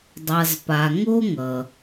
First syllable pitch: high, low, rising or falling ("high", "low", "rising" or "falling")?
low